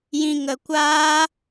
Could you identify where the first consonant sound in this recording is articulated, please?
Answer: palatal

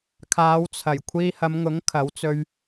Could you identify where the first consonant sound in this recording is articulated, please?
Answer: velar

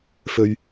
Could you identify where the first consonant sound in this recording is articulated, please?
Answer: labial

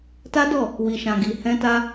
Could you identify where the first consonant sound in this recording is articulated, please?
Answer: alveolar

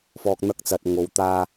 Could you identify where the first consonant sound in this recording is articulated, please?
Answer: labial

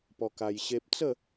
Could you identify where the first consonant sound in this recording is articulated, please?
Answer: labial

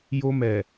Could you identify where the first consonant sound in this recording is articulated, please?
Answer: palatal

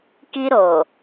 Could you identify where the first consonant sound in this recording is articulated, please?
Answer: velar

